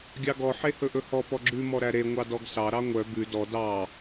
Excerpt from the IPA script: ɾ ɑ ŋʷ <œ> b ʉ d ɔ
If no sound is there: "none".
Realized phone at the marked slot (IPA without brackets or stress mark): œ